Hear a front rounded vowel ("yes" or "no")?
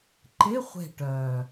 yes